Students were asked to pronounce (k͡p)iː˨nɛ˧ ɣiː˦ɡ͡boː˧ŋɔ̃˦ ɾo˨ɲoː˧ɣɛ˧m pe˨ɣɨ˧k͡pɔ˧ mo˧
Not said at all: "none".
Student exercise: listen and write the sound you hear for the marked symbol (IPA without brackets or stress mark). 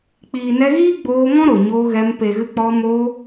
k͡p